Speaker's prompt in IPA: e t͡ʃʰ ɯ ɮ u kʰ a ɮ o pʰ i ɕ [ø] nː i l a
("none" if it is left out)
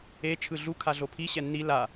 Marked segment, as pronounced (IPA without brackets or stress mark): ɛ